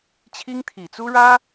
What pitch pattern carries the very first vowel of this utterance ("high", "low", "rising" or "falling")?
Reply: high